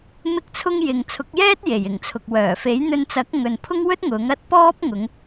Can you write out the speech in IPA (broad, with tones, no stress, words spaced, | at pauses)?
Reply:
mɪ˥k̚t͡sʰʊ˥ŋ jɪ˨ŋ t͡sʰʊ˨˥k̚jɛː˥t̚ je˨˩jɪ˨˩ŋ t͡sʰʊ˨k̚wœː˨˩ fe˨˥jn̪ɵ˧nt͡sɐ˨˥k̚ ŋɵ˨npʰʊ˥ŋwɵ˥t̚ ŋʊ˨˥ŋɐ˥t̚ pɔː˥p̚ŋʊ˨˧ŋ